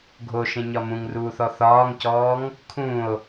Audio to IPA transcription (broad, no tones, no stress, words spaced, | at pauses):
ɡʱoʃẽɲɒ mũŋruːθɔ θɒːŋcɔːŋ | kʰũo̯